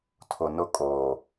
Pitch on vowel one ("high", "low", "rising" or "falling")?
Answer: low